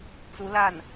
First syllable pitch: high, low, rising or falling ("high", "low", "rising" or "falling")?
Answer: rising